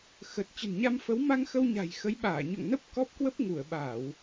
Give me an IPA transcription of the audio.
x ə˨˩ t̚ t͡ɕ ə̤˨˩ n ɲ a˧ m f ə˨˦ w m a˧ ŋ x ə˧ w ɲ a̤˨˩ j x ə˨˦ j ɓ aː˧˩ ɲ o̰˧˨ ŋ n ə˦˥ p̚ k ɔ˦˥ p̚ k w ə˦˥ p̚ ŋ u˧˩ ə̯ ɓ a˧˩˨ w

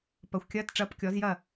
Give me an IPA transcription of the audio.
p ɐ˩˥ xʷ kʲ ɐː˧˥˧ t ʈ͡ʂ ɐː˧˥˧ p kʲ ɔ˩˥ z j ɐ˥˩

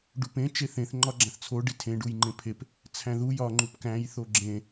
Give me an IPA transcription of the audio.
ɖ u p ẽ t͡ʃ e θ ẽ θ ŋ͡ǃ ɒ ɡ͡ǁ æ̃ θ t͡sʰ o ɖ i tʰ ẽ ɖ u j ŋ͡ǃ ẽ pʰ e p | t͡sʰ æ̃ ð u j ɒ ŋ͡ǃ u p k æ̃ j θ o ɡ͡ǁ ẽ

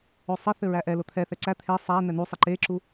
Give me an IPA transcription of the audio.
o sˤ ɘ θ ɘ ɹ æ ʔ ɛ l o t̪ʰ ɛ θ ɛ ǀ æ t̪ʰ e sˤ æ n̪ ɛ n̪ u sˤ e ǃ e ǁ u

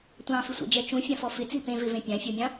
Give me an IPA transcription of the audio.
tʷ ɑ̃ f ɪ sʷ ḛ d͡ʒ ɛ t͡ʃ ũ fʲ ã f ɔ f ɪ t͡s i p ẽ v ɪ v ẽ pʲ ã fʲ ɔ mʲ ɑ̃

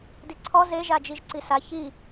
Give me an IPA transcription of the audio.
d i ǀʰ ɔ z e ʒ a d͡ʒ i ʒ ǀ i s a ç i

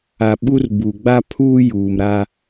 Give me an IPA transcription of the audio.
a˨ ɓ u˦ r b u˨ ɡ͡b a˦ pʰ uː˦ j uː˨ m ɾ a˦

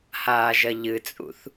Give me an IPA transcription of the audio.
h aː ʒ ɐ ʎ ɨ t͡sʼ ṵ θ

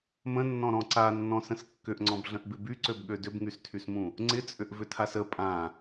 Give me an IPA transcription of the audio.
m ə̃ nː ɔ̃ ɾ ɔ̃ ǀ a nː ɔ̃ s ə̃ s kː ʏ ʔ ŋ͡ǀ ɔ̃ b ɮ ə̃ ʔ b ɪ b y ǀ ø b ɠ ø d ʏ b ŋ y s tʰ y s m ũ | ŋ͡ǀ ɪ t͡sʼ ʏ ʔ v ʏ tʰ a s ə pʼ ã

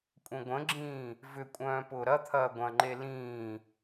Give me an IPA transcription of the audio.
kʷʼ ə̃ ɡʷ ə̃ ɡ͡ǁ ĩː | v ʏ kʷʼ œ̃ː p ʊː ɾ ɐ t̪ʰ ɐː ɡʷ ɐ̃ ŋ͡ǃ e l ĩː

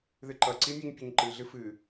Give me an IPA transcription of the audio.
ð ɨ ǃ ʌ ǀ i mʲ u ɲ pʲ o ɲ ǃ ɨ ɮ ɨ f ɨ

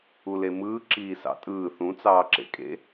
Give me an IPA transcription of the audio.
u l e m ɯː ǁ iː s ɑ̰ tʼ ɯː θ ũ t͡s ɑː ǁ ḛ kʼ ḛ

